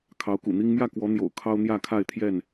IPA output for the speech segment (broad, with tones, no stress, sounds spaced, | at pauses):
kʰ ɑ˨˦ ʊ̯ k ṵ˨˩ n̪ i˦ ŋ m j ä˥˨ k w ɔ˨˦ n̪ j o̰˨˩ ʊ̯ kʰ ɑ˦ ʊ̯ n̪ j ä˥˨ kʰ a˥˨ ɪ̯ t̪ʰ j ɛ˥˨ n